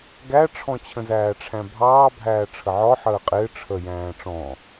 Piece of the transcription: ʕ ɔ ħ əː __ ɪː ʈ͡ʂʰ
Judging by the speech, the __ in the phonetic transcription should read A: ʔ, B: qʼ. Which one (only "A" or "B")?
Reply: B